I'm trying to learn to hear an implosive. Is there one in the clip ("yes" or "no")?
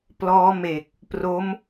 no